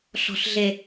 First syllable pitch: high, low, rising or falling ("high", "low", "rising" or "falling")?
low